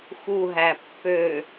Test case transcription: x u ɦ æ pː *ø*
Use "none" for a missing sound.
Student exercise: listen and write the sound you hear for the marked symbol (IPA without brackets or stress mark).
ø